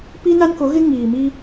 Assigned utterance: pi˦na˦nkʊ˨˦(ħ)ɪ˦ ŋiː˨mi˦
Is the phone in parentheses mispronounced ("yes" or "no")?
yes